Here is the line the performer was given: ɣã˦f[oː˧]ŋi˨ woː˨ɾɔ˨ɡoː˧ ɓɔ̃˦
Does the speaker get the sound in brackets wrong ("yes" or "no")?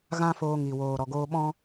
no